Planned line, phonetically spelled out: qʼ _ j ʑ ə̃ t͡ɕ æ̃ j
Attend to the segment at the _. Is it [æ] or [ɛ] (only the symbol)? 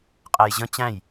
æ